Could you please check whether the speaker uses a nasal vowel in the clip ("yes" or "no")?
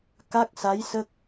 no